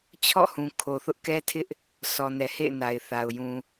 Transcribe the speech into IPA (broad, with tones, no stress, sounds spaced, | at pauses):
t͡ɕʰ ɔ̰˦˨ h ũ˨ kʰ o˨ θ ʊ˦ ʔ k ɛ˦ tʰ ɪ˦ ʔ | s ɔ˨ n ɛ˨ h ḛ˦˨ ɪ̯ n a˨ ɪ̯ θ a˨ ʊ̯ j ũ˨